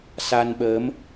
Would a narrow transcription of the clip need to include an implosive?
yes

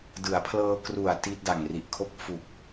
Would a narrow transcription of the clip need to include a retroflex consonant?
no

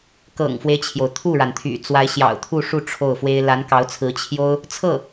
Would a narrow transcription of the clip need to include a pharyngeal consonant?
no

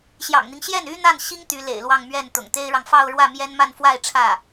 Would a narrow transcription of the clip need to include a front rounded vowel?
yes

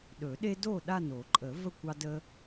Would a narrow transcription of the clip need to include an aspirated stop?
no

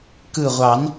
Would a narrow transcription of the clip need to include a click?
no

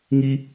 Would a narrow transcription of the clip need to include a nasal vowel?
no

